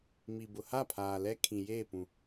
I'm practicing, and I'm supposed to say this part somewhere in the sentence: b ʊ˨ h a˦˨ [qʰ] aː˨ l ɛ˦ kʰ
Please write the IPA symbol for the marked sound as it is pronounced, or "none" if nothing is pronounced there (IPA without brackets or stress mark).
pʰ